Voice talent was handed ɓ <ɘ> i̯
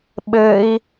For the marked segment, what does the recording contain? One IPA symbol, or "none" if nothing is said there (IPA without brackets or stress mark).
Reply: ɘ